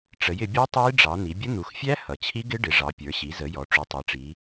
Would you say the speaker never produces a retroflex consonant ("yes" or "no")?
no